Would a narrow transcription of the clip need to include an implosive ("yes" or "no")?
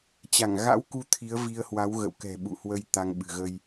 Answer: yes